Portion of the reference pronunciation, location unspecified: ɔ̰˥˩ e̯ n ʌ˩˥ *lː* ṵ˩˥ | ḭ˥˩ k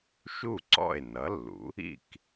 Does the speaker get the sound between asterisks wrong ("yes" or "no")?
no